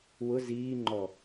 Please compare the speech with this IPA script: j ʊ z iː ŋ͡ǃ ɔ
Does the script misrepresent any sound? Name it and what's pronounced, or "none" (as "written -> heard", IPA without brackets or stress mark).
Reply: j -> w